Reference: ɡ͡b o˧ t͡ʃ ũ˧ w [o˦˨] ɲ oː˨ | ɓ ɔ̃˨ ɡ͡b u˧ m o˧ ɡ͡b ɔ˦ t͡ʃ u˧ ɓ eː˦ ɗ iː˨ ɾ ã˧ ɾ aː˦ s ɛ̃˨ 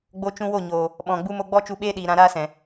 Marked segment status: correct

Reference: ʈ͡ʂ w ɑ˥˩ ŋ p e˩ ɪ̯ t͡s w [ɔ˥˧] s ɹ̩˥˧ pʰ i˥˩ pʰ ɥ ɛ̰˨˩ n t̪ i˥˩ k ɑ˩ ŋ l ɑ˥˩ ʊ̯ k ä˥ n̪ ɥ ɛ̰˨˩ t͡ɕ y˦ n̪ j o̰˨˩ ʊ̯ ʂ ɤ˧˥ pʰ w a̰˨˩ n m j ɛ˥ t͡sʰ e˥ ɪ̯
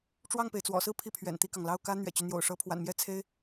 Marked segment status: incorrect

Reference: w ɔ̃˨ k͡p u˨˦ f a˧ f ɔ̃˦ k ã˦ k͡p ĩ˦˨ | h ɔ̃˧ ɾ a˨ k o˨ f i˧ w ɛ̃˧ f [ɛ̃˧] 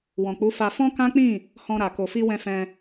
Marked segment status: correct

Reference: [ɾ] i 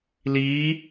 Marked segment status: incorrect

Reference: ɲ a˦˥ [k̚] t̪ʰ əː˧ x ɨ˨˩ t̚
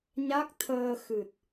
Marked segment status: correct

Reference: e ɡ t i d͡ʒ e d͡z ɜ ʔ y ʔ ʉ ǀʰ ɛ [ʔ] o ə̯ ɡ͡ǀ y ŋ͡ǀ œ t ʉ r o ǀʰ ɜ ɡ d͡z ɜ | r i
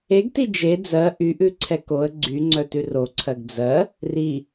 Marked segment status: incorrect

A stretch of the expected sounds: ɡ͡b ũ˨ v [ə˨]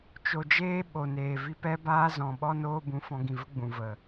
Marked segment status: correct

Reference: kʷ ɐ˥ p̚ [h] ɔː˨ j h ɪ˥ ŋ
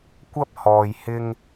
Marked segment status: correct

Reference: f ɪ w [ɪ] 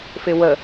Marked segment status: incorrect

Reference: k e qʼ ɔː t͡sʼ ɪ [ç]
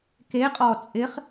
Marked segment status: incorrect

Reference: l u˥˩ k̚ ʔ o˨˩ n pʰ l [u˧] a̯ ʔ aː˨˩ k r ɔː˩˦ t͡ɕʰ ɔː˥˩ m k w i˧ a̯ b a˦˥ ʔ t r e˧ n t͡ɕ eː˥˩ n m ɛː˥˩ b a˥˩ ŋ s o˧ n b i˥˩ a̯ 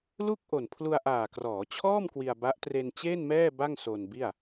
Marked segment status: correct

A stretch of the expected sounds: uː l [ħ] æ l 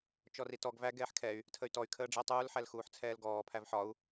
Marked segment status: correct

